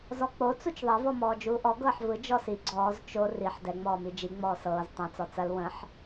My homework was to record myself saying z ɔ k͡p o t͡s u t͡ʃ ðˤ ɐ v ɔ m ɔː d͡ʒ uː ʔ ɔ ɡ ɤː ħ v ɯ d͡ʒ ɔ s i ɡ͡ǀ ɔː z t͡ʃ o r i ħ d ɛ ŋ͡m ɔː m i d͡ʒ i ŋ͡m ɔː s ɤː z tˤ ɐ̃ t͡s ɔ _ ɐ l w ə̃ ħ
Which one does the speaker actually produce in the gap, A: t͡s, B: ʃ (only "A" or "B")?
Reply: A